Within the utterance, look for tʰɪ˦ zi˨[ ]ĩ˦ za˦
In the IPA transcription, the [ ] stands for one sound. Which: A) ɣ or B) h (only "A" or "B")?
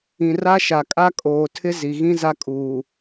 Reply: A